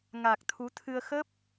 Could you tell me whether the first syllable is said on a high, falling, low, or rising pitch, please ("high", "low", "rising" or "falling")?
low